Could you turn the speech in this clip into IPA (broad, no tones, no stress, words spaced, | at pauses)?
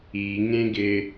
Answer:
iŋẽɡɪ